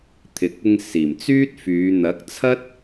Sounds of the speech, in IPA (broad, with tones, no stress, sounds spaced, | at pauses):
t̪ʰ ɪ˨ k̚ ɪ˧ ŋ s iː˨˩ m t͡s yː˥ t̚ f yː˨˧ n̪ ɐ˨˥ k̚ t͡sʰ ɐ˥ t̚